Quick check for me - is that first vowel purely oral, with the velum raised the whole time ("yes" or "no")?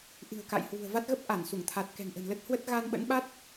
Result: yes